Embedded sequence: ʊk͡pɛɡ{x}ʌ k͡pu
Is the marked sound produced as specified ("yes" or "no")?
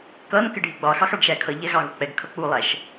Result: no